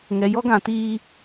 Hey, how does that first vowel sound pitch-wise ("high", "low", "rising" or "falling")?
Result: low